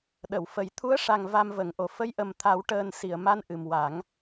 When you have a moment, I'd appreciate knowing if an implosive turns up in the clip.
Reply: yes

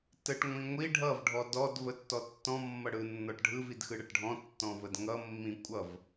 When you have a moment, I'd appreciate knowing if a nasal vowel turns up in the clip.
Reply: yes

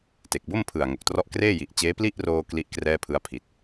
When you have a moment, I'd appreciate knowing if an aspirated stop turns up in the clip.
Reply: yes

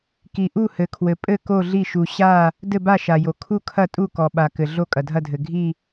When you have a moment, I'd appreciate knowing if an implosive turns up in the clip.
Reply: yes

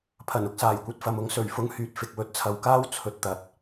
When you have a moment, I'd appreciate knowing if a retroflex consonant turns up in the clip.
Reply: no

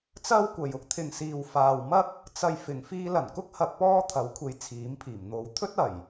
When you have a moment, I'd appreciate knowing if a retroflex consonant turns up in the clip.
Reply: no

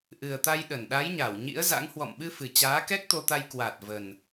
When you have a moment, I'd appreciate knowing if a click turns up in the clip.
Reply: no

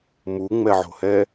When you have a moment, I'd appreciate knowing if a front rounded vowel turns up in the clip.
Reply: no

